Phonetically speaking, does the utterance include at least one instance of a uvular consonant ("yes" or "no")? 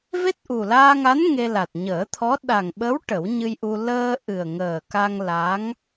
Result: no